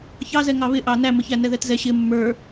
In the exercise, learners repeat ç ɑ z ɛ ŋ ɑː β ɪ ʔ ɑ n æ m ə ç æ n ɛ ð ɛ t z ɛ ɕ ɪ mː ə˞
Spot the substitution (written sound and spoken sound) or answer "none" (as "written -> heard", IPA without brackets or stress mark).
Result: ɑː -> ɑ